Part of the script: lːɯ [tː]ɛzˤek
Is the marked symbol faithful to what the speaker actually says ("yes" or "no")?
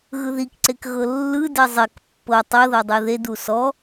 no